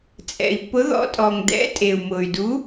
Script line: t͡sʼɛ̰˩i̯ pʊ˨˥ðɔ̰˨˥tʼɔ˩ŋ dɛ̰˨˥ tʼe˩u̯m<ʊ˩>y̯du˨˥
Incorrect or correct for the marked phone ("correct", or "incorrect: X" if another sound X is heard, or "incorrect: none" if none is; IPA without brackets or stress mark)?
correct